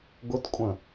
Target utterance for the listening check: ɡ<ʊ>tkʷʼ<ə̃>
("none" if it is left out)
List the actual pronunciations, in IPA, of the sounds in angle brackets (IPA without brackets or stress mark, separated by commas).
ʊ, ə̃